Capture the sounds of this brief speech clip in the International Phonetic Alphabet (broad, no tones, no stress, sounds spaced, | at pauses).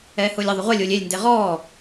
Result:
ɛː h ʊː lʲ ə ðˤ ʊ ʁʷ ɛ lʲ ʊː lʲ e lʲ n d e ʁ ɔː